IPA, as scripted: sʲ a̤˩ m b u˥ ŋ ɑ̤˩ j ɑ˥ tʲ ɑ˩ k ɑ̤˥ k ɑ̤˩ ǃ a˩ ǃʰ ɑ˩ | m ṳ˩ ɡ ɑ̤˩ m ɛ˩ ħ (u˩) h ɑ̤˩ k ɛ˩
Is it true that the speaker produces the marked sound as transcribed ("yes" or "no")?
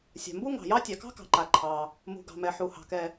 yes